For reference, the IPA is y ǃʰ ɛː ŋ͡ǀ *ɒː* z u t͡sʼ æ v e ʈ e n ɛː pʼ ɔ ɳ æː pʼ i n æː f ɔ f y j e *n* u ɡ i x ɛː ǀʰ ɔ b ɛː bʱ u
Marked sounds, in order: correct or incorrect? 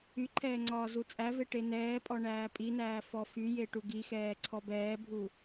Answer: correct, incorrect: ʈ

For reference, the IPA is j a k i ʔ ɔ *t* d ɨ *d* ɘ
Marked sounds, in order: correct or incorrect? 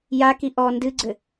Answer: incorrect: n, incorrect: ɡ͡ǀ

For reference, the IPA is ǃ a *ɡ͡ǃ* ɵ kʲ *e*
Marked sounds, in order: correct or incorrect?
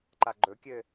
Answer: correct, incorrect: ɘ

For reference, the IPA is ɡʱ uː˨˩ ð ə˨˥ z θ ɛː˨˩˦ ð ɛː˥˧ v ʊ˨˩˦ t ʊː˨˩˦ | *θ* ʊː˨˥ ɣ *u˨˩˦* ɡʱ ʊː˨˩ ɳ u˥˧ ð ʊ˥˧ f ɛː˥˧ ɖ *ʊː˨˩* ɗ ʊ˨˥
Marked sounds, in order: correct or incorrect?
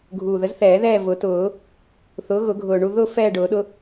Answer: correct, incorrect: ʊ˨˩˦, incorrect: ʊː˨˩˦

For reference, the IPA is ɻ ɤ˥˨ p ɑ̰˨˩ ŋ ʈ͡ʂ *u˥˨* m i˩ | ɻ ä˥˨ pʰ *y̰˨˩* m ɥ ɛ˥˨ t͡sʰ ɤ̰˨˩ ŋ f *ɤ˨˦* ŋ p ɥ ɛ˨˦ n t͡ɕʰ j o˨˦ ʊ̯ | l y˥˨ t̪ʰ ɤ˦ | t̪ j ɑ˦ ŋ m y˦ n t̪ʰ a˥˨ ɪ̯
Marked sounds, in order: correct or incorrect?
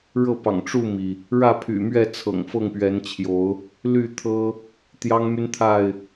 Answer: correct, correct, incorrect: ɤ˥˨

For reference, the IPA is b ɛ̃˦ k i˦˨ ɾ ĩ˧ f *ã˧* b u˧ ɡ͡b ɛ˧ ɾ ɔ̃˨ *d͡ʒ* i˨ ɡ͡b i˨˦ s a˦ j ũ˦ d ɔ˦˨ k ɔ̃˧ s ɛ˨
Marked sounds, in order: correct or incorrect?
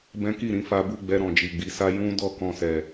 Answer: incorrect: a˧, correct

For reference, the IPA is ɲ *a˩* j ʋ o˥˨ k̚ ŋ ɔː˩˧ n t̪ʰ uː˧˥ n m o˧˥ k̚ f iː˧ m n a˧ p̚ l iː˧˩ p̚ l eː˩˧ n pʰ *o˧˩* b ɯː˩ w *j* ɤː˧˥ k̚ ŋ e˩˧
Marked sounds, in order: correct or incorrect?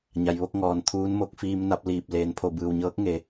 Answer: correct, correct, incorrect: ɲ

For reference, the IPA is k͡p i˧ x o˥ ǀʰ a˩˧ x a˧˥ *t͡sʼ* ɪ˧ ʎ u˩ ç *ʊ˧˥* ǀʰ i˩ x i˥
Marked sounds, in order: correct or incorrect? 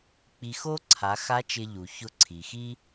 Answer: incorrect: t͡ʃ, correct

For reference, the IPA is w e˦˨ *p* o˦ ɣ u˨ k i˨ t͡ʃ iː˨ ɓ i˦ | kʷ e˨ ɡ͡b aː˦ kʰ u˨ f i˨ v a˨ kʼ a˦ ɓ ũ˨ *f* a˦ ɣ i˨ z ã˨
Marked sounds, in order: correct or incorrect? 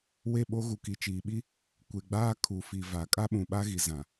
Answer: incorrect: ɓ, incorrect: ɓ

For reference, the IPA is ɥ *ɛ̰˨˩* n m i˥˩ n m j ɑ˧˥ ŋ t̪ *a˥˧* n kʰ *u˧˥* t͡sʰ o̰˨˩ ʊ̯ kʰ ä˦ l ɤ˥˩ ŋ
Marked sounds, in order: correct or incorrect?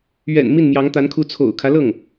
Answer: correct, incorrect: a˧˥, correct

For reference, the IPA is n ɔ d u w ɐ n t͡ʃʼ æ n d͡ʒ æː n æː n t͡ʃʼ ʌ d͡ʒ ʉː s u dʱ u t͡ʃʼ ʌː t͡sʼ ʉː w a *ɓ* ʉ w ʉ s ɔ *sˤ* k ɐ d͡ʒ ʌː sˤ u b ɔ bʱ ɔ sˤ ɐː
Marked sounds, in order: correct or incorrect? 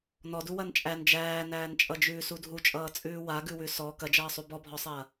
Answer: incorrect: ɡ, incorrect: none

